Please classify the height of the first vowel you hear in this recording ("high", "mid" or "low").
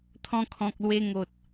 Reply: mid